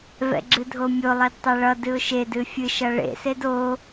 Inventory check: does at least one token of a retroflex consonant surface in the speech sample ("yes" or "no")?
yes